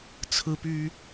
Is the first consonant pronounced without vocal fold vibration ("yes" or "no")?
yes